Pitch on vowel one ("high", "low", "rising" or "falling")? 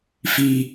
low